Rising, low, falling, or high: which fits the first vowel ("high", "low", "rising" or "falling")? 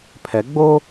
rising